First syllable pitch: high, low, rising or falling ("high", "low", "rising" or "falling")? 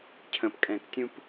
low